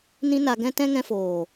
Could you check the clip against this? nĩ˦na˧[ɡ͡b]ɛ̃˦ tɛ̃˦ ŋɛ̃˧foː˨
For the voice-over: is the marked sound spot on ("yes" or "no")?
no